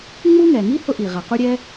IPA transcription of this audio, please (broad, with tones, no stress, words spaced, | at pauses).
ŋ͡mu˥ŋɛ˩ŋi˥ hʊ˥ʔi˩ ʁa˩qu˥ɾʲɛ˥